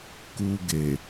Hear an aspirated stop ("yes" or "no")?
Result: no